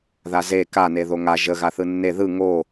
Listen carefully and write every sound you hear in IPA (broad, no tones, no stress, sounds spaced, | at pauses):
ð a z e k a n e ð o ŋ a ʒ ə ɣ a θ ɯ nː e ð ɯ ŋ o